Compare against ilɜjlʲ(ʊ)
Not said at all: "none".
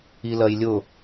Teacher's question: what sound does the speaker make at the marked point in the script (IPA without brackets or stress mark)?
ʊ